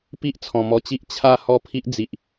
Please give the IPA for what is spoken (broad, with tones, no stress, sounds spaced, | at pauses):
p i˦ ʔ t͡sʰ ɔ̃˨˩ m ɔ˧ t͡ɕ i˦ ʔ t͡ɕʰ a˥˧ h ɔ˥˧ pʰ i˦ ʔ d͡z i˨ ʔ